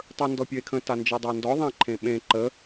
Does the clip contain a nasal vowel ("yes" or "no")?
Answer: yes